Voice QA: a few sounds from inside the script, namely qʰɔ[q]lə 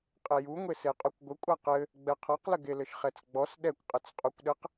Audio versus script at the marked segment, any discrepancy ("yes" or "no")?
no